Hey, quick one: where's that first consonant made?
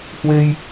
throat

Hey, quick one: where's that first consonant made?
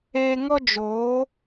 velum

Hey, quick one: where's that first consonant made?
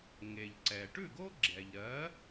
velum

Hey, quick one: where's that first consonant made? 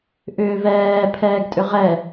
throat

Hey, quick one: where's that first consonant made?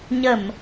palate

